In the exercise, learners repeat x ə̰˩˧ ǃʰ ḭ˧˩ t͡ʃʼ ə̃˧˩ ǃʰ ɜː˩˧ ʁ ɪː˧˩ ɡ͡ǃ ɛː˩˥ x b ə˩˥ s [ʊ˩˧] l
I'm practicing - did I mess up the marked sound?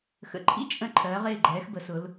no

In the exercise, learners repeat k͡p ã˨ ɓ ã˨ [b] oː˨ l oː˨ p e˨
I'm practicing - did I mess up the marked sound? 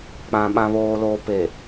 yes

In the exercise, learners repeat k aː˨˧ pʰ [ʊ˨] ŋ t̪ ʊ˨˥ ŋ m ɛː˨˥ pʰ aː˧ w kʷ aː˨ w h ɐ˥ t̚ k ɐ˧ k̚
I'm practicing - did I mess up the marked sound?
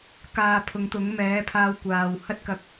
yes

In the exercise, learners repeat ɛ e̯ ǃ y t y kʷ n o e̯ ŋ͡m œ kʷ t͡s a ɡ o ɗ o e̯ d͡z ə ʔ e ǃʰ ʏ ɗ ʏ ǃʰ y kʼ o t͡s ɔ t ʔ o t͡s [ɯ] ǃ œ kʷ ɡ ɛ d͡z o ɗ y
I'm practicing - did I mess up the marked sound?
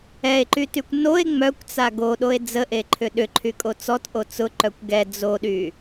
yes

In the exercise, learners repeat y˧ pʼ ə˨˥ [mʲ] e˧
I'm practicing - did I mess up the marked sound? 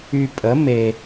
yes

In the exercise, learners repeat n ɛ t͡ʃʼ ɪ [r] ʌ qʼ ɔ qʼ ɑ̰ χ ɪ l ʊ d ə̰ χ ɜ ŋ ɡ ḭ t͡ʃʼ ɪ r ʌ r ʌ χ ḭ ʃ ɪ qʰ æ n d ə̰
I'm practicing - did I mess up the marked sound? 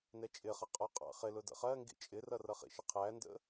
yes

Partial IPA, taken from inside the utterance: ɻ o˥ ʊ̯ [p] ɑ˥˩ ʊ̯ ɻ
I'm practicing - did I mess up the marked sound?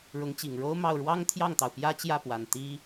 yes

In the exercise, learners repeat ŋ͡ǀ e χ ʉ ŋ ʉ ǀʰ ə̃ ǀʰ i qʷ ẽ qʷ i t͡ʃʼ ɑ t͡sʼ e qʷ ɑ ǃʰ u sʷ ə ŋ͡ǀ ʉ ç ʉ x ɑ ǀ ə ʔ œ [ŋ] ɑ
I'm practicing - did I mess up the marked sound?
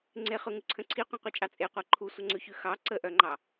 yes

